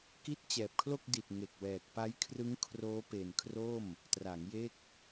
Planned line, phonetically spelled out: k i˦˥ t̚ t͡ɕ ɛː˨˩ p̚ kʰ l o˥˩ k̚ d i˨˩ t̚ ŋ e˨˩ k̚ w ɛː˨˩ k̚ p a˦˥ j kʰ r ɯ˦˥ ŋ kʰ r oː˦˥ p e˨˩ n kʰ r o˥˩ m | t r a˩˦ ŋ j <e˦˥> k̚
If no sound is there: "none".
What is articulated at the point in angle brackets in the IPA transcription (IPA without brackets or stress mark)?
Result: e˦˥